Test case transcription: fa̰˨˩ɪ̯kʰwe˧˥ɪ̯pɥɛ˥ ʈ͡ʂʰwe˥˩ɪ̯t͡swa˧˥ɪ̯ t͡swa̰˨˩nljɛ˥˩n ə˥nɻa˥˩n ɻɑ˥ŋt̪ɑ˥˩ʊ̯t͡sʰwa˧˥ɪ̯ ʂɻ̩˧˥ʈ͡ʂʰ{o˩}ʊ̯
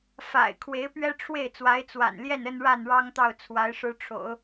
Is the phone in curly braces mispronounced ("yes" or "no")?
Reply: yes